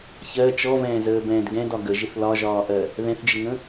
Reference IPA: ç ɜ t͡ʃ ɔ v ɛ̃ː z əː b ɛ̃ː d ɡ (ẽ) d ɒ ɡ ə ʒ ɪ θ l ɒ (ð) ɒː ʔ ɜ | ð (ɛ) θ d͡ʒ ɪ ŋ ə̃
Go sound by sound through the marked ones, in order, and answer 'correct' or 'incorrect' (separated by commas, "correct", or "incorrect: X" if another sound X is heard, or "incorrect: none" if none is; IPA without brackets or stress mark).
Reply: incorrect: ɛ̃, incorrect: ʒ, incorrect: ɛ̃